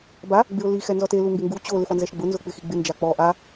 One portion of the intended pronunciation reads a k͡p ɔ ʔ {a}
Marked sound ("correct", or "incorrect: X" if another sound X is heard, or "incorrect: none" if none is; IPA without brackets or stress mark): correct